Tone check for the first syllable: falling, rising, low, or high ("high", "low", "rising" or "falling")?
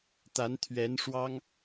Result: rising